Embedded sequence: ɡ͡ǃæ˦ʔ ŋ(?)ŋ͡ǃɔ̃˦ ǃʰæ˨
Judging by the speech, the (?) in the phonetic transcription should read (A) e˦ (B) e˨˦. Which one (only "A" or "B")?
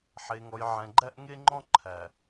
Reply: A